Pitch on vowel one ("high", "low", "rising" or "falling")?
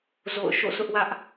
falling